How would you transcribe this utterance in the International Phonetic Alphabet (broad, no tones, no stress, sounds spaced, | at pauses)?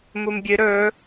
m u m bʲ ɨ ɾ ɵ